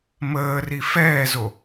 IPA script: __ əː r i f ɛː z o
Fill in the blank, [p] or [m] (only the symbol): m